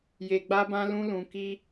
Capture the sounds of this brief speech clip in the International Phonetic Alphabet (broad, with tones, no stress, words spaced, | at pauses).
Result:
je˧ɡ͡ba˦bã˦lũ˦ lũ˧ki˦